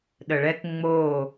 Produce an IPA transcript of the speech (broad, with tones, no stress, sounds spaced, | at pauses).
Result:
ɗ ə˨ ɭ ɛ˦ k ŋ͡m o˦˨